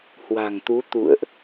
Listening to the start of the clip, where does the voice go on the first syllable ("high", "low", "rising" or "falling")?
low